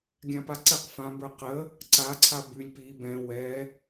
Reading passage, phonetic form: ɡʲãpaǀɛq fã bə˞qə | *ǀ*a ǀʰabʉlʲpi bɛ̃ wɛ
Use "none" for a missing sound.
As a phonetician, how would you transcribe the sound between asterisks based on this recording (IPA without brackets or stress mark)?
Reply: ǀ